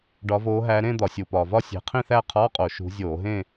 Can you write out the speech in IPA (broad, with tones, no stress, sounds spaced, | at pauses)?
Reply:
ɖ ɒ˨˦ v oː˨˦ ɦ æ˨˦ ɾ ẽ˥˧ d̪ ɒ˧˩˧ sʲ u˨˩ p ɒː˨˩ v ɒ˥˧ sʲ e̤˨˦ qʰ ĩ˥˧ θ æ˥˧ qʰ ɒː˧˥˧ qʼ o˧˩˧ ʃ ṳ˨˦ zʲ oː˧˩˧ ɦ ẽ˥˧